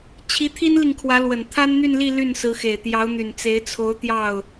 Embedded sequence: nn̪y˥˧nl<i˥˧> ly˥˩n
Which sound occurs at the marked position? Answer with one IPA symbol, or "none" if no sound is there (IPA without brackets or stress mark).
i˥˧